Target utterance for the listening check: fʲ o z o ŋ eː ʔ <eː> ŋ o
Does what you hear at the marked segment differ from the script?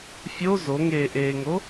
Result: no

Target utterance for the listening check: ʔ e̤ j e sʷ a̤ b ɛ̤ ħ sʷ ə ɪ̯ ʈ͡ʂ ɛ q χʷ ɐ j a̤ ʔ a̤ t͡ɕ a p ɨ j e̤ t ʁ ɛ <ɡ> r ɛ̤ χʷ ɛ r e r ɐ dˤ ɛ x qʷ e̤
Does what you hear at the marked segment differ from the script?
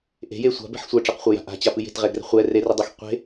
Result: no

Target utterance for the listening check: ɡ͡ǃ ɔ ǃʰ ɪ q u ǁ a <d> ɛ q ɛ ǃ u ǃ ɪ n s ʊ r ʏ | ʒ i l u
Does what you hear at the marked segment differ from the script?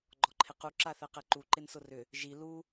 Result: yes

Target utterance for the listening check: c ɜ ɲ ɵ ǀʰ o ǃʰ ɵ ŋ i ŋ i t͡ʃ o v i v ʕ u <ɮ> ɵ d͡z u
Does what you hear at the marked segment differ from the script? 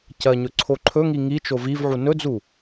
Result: yes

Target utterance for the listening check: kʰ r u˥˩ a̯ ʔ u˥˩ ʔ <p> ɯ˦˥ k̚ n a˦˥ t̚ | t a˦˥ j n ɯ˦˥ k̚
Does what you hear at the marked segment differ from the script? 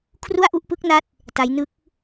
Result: no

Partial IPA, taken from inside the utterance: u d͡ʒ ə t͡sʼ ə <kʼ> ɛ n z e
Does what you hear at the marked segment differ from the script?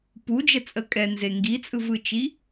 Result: no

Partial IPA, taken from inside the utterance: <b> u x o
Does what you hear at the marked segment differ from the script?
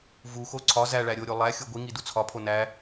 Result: yes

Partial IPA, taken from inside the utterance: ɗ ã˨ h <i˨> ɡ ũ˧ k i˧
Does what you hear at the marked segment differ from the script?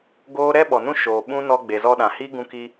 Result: yes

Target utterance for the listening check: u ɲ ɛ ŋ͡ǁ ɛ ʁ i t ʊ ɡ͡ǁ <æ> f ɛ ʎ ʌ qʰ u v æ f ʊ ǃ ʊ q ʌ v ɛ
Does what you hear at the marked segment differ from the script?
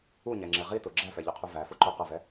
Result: no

